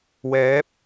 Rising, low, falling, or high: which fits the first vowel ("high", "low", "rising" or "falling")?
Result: rising